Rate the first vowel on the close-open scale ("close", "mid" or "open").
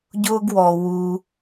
close